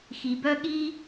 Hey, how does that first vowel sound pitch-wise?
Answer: low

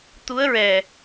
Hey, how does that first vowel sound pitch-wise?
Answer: rising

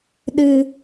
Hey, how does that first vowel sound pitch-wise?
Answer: low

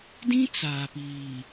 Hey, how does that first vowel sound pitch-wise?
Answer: high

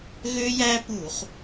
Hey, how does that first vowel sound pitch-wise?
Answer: high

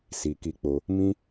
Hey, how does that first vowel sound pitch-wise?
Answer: low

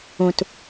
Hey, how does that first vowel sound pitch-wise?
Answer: low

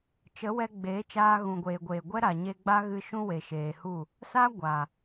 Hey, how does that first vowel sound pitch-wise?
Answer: rising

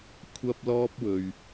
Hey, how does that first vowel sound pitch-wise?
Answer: high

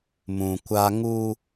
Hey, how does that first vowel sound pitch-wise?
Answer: low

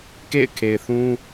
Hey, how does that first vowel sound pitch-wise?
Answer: falling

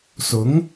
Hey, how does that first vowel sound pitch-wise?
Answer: rising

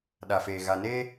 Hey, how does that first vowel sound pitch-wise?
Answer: low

